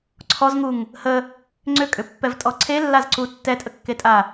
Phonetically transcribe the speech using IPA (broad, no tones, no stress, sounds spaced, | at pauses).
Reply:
ǀʰ ɔ z ŋ u ŋ | h ə | ŋ͡ǀ ʏ kʼ ʏ pː ɛ v tʼ ɔ ǀʰ e lː a z ǀ u tː ɛ tʼ ə kː e tʼ a